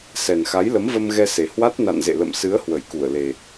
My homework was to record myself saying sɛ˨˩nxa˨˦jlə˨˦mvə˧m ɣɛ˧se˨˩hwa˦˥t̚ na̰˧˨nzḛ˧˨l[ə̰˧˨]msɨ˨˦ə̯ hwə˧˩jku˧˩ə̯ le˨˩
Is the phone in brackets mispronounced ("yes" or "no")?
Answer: no